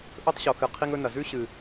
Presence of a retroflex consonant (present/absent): absent